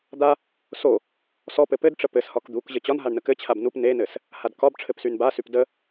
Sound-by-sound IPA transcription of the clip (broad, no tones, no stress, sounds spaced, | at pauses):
d̪ a | s o | s ɔ p ɘ p ɘ d ʈ͡ʂ ə p ɘ s h ɒ k d̪ u k ʑ ə t͡ɕ ɒ n ɦ a ɳ n ə k ɘ t͡ɕʰ a b n u p n e n ɘ s | h a d k ɒ b ʈ͡ʂʰ ɘ p s y n b a s y p d ə